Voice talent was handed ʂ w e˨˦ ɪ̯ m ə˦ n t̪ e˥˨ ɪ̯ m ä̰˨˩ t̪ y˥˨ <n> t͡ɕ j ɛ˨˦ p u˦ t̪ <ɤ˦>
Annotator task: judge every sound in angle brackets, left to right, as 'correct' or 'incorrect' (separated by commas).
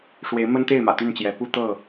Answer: correct, incorrect